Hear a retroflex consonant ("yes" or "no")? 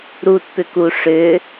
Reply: yes